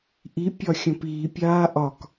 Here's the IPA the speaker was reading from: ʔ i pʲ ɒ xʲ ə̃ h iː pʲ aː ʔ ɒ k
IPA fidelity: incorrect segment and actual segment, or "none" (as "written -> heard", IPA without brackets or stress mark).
h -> p